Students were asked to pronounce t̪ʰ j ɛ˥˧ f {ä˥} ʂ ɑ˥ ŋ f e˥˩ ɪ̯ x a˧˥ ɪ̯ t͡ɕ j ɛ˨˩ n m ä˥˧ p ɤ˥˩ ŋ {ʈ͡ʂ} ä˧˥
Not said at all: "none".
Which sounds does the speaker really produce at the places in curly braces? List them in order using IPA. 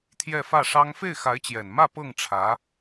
ä˥˩, ʈ͡ʂʰ

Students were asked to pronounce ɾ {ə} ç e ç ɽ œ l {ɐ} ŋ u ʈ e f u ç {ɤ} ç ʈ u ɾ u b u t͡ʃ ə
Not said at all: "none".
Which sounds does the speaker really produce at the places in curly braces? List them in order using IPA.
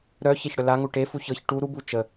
œ, a, ɤ

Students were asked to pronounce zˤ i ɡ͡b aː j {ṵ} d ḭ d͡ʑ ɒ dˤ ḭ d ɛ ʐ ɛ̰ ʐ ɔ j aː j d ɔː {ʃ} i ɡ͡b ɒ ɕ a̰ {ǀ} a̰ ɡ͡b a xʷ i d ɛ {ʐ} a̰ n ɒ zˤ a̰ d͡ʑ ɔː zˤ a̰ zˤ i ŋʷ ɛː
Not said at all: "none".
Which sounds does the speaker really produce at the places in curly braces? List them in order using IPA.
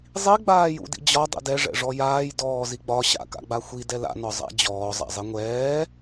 ṵ, z, k, l

